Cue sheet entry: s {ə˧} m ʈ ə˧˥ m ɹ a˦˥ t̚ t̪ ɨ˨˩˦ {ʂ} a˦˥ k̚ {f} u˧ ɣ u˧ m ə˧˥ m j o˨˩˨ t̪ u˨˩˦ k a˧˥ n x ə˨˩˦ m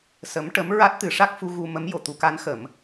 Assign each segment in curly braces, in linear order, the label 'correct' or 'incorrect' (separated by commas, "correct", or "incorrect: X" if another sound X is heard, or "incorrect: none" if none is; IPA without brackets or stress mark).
incorrect: ə˧˥, correct, correct